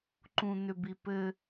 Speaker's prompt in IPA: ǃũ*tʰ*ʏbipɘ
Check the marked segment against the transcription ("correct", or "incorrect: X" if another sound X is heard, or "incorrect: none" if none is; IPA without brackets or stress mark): incorrect: n̪